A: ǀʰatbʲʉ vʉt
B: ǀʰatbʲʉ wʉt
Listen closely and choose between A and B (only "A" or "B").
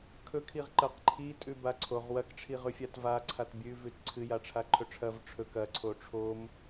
A